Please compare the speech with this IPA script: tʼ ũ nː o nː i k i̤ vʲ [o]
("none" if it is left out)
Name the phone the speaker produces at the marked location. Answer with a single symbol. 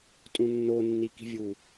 u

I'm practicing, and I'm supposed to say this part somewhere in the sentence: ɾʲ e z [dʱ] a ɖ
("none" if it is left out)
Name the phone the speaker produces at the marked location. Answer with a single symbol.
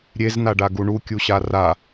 n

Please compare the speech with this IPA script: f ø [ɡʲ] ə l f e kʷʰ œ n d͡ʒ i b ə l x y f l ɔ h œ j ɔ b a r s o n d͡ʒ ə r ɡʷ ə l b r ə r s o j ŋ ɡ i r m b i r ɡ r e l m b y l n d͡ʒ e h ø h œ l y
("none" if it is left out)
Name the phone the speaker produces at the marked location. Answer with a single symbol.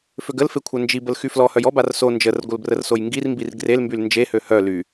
ɡ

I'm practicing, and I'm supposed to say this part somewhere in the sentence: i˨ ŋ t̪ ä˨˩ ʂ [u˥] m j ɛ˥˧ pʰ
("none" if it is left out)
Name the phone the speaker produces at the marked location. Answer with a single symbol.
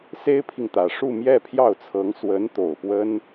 u˥˧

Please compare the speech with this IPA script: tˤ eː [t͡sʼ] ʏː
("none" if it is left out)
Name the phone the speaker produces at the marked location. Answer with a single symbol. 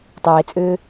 t͡sʼ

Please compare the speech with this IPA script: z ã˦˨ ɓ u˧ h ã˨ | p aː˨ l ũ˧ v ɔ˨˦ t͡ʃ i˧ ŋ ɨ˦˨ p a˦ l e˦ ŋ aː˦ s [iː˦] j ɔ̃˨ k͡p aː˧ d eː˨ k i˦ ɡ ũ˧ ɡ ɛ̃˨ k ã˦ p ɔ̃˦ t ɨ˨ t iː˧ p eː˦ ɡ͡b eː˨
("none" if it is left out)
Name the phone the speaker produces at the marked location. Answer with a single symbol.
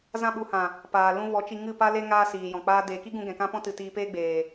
iː˨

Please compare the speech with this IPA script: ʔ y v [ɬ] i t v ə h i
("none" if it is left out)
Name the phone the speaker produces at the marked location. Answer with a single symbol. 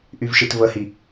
ʃ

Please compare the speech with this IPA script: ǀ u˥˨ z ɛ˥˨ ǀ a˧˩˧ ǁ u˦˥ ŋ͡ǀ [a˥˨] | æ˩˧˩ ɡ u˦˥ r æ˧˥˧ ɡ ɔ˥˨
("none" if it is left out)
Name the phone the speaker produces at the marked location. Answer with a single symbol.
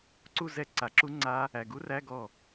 a˦˥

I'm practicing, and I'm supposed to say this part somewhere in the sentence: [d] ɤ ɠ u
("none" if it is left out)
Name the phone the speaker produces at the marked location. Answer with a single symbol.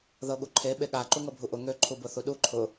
ð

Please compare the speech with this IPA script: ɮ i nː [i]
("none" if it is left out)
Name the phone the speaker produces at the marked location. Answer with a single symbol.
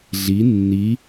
i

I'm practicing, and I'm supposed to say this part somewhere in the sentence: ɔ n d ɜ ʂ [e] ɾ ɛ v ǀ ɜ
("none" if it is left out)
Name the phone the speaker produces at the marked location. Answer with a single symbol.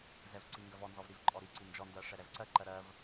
ɛ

